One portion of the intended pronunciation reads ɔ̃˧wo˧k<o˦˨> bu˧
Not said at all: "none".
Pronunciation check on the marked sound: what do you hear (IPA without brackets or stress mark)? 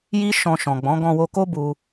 o˦